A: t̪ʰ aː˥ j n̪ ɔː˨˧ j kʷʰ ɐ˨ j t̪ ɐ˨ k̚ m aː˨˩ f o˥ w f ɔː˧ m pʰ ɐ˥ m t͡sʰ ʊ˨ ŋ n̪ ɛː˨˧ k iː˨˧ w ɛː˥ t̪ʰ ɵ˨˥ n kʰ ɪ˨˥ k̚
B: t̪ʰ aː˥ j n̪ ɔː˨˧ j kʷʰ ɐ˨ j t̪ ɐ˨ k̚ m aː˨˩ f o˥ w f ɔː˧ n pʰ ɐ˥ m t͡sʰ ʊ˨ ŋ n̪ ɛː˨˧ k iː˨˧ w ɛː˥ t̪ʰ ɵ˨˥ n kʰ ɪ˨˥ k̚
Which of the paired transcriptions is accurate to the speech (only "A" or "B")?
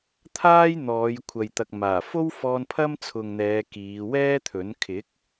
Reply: B